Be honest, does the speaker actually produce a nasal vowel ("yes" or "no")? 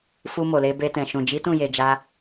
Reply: yes